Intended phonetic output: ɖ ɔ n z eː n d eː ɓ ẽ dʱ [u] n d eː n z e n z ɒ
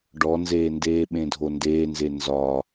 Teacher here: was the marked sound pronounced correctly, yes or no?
no